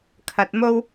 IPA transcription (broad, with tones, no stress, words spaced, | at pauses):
kʰɐ˧t̚mo˥w